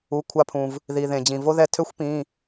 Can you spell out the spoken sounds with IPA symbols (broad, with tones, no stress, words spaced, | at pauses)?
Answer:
u˩˧˩kʷʰa˧pʰũ˩v | ði˩ðẽ˩ d͡ʑĩ˩vo˧ ðɛ˧ tʰø˧˥xʷ pĩ˩˧˩